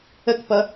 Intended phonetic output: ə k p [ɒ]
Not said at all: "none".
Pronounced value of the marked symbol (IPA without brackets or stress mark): ʌ